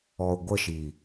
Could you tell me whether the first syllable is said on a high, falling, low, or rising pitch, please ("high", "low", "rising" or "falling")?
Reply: low